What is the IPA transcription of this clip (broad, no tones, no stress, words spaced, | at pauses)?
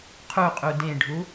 qʰuqʼu dẽɖʱu